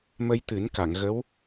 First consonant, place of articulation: labial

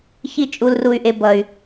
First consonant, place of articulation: palatal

